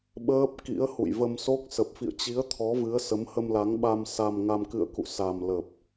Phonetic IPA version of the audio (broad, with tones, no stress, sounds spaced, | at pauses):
ɓ əː˦˥ p̚ k ḭ˧˥ ə̯ h ṵ˧˨ j v ə˧ m s o˦˥ k̚ s ə˨˩ p̚ f ḭ˧˨ ə̯ t͡ɕ i˨˦ ə̯ t̪ʰ ɔ˨˦ v ɨ˨˦ ə̯ s ə˨˦ m h ə˧ m l a˨˦ ŋ ɓ a˧ m s a˧ m ŋ a˧ m k ɨ̰˧˨ ə̯ k ṵ˧˨ s a˨˩ m l ə˨˩ p̚